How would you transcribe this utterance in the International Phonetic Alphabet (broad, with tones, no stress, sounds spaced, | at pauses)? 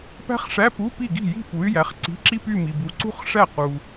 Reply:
p æ̤˥ χ ʂ æ˧˥˧ p u˧˥˧ p i˥˩ ɡ i̤˥˩ j i̤˥˧ p u˨˦ y̯ j æ˨˦ χ ǀ i̤˧˥˧ ǁ i˥ p y˥˧ m i˨ b u˨˦ ǀ ṳ˥˧ χ ʂ æ˥˩ q u˨